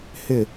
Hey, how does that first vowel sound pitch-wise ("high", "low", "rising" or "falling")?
falling